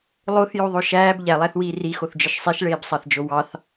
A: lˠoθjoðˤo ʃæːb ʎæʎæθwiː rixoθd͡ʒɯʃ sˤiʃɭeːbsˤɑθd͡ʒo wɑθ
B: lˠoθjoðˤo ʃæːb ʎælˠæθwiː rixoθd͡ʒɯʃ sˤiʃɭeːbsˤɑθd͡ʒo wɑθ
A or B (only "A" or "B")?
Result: B